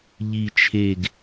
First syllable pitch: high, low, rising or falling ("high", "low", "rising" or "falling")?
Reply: low